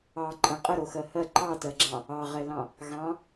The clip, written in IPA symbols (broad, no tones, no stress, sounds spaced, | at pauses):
ɑ ǃʼ ə̃ qʼ ə ɾ o x ɜ h ɜ ǃ ɑ t ɜ ɡ͡ǁ ɑ̃ | ɑ ʁ ɛ l ɑ̃ | ɣ ɑ̃